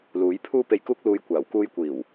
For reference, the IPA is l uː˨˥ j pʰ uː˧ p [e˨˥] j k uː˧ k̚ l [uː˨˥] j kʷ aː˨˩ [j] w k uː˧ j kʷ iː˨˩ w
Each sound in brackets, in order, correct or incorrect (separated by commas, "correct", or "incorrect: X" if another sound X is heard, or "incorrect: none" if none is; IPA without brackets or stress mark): incorrect: e˨, incorrect: uː˨, incorrect: none